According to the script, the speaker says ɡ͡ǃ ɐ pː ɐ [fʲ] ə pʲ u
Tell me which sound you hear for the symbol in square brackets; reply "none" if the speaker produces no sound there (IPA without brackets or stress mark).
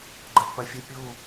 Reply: fʲ